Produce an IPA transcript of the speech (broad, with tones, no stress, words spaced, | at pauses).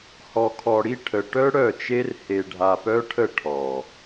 hɔ˨kʰɔ˨ɽi˦ ʈʰə˨ ʈœ˦ ɽœ˦˨t͡ʃe˦r he˨ɖʱa˨pœ˦ʈʰə˦˨ ʈʰɔ˨